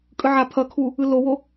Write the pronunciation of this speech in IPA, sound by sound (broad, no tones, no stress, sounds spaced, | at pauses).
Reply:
kʼ ɯ ʕ a pʰ ʌ kʰ u | ɯ l o w o